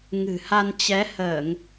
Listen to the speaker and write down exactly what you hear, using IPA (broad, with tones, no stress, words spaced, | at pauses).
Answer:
ŋɨ̤˨˩ha˧n t͡ɕɛ˨˦həː˧˩˨ŋ